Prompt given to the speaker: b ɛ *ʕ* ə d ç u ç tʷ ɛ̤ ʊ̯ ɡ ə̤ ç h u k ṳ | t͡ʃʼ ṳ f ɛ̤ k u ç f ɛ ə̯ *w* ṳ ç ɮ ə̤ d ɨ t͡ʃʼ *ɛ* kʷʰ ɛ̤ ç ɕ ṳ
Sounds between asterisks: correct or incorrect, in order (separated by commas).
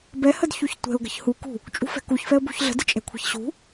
incorrect, incorrect, incorrect